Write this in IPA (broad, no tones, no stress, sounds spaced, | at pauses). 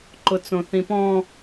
ǃ ʊ t͡s õ θ ĩ p ɔ̃